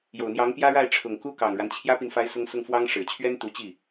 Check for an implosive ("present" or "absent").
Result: absent